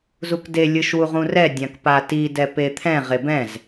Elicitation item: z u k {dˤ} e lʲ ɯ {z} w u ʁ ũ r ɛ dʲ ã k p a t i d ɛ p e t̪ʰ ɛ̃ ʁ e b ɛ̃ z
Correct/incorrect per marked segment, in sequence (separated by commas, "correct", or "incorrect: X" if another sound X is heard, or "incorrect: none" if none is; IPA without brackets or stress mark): incorrect: d, incorrect: ʃ